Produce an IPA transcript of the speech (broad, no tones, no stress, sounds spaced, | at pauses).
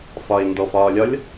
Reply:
f ɒ ɪ̯ n d ɔ f ɒː lʲ ɒ lʲ